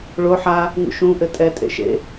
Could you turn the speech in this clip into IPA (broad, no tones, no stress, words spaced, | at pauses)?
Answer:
ɭo ħa | ŋṵʃũ ʔɘtʼɛ tʼḛʃḛ